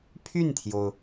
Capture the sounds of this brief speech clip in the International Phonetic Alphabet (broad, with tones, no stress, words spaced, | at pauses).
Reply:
pʰy˥˩nt̪ʰjo˩ʊ̯